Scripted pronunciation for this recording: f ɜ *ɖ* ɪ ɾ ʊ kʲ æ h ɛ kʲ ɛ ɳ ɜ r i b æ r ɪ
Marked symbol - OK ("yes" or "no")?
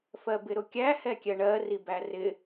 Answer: no